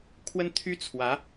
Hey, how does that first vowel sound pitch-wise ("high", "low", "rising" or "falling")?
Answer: high